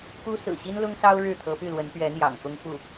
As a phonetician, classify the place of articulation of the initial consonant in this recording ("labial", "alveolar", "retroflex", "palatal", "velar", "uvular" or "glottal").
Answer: velar